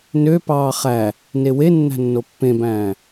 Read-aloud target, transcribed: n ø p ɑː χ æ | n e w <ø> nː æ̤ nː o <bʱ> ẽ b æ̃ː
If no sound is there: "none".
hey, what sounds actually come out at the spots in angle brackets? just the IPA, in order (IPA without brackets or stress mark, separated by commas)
e, pː